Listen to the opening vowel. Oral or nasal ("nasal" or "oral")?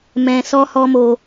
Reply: nasal